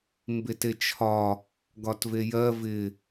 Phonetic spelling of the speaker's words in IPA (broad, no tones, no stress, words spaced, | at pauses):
mbetet͡ʃʰɒ | ɡɒtvejɜ vɪ